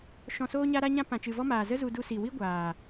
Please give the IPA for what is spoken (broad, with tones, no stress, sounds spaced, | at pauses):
ʃ ɔ̃˨ s oː˧ ɲ a˧ ɾ a˧ ɲ ã˧ p ã˨ t͡ʃ ɨ˨ v ɔ˦ m aː˨ z ə˦ z u˧ d u˧ s i˨ w i˦ ɡʷ aː˨